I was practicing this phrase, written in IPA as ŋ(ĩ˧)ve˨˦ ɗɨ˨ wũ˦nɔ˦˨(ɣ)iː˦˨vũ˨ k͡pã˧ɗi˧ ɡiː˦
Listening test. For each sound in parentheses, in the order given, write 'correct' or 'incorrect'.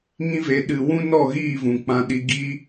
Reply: incorrect, correct

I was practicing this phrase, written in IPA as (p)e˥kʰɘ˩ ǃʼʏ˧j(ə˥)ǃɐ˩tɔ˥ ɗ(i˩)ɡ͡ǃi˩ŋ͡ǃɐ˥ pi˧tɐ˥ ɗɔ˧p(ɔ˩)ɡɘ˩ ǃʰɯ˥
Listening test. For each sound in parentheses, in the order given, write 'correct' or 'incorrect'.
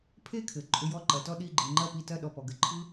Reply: incorrect, incorrect, incorrect, correct

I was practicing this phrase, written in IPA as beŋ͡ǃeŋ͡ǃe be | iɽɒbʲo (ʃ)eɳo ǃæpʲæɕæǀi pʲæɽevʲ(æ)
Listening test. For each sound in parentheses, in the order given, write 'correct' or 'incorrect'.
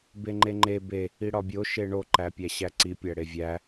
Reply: correct, correct

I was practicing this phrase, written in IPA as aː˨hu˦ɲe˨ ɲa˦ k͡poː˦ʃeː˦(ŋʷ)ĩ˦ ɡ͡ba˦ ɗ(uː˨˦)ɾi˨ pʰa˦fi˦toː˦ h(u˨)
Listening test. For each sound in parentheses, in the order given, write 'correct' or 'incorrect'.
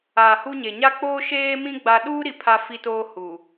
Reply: incorrect, incorrect, correct

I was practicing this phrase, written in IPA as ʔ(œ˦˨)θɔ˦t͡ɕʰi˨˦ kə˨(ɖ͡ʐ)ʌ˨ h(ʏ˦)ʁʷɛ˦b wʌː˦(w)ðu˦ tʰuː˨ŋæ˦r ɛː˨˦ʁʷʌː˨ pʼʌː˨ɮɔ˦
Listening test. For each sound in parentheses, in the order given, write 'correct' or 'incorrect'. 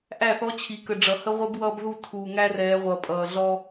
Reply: incorrect, correct, incorrect, incorrect

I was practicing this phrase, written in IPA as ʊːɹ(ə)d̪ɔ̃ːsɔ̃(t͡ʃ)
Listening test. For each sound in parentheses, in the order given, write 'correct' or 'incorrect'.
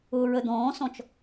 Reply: correct, correct

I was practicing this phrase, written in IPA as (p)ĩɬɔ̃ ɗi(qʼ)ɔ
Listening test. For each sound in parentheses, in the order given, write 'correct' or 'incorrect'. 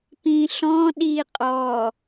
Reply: correct, correct

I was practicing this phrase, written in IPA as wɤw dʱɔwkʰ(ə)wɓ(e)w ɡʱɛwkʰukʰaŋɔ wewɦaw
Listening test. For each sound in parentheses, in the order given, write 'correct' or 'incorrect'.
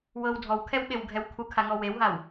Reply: incorrect, correct

